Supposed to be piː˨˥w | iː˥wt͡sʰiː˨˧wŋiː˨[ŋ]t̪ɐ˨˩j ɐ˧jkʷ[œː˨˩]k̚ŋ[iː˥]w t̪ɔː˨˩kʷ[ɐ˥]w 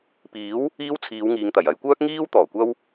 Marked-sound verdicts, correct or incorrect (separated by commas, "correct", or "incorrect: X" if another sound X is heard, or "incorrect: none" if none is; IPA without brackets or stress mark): correct, incorrect: œː˥, correct, correct